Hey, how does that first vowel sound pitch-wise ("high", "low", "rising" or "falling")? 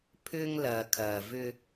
high